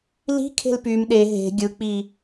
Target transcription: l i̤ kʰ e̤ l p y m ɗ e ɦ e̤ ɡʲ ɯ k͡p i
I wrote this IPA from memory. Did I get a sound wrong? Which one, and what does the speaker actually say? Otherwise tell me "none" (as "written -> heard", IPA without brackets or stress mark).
none